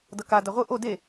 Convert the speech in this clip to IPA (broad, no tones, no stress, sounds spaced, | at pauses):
d ʌ k a d a ʁʷ ɯ ʔ o d e